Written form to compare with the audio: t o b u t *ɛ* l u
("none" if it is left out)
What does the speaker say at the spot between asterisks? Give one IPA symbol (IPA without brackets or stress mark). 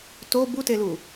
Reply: e